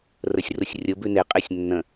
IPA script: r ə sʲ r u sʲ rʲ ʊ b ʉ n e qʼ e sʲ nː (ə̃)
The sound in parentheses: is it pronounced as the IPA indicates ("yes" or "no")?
yes